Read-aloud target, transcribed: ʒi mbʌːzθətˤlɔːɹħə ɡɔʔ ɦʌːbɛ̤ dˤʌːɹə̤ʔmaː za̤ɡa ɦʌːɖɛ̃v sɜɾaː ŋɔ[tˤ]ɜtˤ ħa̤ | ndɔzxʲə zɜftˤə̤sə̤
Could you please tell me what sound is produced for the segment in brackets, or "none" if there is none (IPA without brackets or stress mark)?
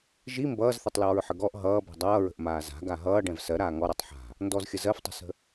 ɾ